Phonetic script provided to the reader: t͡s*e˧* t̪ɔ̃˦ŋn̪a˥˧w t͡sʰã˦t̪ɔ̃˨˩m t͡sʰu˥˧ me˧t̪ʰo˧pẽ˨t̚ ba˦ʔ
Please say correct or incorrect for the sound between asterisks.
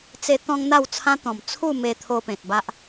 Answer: correct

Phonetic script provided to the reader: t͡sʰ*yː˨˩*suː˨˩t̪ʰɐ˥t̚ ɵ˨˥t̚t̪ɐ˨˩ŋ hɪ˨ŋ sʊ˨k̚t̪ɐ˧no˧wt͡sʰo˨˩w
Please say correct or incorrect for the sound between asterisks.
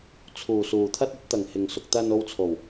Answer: incorrect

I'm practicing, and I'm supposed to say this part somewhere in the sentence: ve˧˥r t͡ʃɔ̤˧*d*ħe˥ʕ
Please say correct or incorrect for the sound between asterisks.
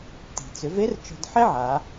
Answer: correct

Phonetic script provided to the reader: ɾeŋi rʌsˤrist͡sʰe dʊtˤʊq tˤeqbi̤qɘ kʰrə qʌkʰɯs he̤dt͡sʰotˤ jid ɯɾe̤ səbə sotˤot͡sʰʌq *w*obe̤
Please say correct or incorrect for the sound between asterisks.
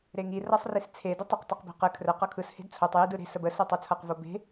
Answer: incorrect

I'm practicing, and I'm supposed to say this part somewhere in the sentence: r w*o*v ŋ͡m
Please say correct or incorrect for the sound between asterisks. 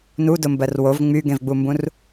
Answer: correct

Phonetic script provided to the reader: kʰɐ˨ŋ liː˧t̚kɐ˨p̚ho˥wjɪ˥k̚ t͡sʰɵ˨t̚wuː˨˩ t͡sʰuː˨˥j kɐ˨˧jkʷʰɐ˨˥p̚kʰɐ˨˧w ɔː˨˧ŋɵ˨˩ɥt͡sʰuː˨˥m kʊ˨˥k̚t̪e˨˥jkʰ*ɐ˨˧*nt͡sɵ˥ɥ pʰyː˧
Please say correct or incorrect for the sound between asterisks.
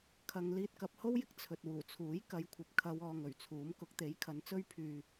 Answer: correct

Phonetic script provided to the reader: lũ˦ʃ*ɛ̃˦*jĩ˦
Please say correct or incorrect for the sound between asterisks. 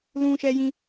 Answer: incorrect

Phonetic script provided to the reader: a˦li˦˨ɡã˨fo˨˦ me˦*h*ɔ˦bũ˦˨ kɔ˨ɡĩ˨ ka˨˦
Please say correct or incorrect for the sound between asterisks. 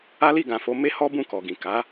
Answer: correct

